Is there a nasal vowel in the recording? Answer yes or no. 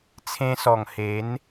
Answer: yes